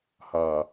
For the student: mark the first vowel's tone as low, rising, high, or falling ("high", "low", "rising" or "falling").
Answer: low